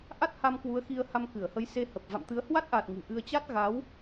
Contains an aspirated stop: no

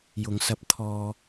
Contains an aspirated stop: yes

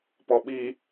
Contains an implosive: yes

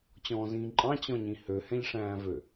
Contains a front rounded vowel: yes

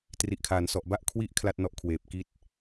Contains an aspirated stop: yes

